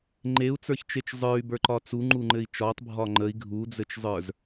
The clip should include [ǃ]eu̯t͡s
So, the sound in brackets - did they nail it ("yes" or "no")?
no